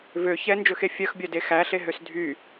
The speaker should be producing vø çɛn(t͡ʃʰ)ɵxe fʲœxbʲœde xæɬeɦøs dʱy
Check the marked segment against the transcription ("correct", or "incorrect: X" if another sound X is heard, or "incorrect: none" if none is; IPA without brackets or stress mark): incorrect: d͡ʒ